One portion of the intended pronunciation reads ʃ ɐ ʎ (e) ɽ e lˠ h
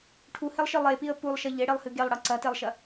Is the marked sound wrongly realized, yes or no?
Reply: no